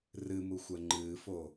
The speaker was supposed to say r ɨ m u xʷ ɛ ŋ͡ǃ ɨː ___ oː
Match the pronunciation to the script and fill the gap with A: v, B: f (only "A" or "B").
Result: B